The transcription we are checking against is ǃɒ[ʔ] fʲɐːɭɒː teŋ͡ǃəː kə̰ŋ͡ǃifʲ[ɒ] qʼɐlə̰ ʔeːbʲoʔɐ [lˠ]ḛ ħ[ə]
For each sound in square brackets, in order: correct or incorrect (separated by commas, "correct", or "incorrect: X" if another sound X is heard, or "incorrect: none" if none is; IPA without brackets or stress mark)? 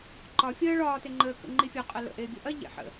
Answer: incorrect: none, correct, incorrect: ʎ, incorrect: ə̰